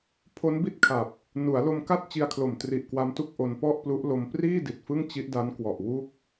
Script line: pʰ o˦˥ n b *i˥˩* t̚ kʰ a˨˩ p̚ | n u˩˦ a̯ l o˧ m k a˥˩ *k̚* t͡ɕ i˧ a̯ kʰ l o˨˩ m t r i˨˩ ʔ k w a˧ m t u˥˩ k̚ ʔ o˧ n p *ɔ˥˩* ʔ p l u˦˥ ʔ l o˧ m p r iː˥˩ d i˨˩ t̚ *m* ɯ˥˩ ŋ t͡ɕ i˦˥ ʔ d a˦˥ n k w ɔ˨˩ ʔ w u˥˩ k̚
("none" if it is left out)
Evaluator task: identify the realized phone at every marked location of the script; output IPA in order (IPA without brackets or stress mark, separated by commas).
i˥˩, t̚, ɔ˥˩, f